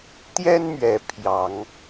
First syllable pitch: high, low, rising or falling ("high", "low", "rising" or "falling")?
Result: high